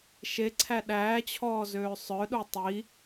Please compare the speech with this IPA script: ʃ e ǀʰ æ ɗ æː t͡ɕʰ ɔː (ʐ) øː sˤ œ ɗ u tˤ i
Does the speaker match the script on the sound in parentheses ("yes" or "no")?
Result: no